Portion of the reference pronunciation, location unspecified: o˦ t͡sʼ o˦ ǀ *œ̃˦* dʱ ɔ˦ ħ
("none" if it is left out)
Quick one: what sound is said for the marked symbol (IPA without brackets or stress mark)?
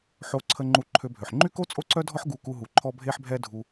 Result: œ˦